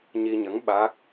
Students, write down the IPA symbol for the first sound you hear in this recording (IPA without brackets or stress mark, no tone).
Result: ɲ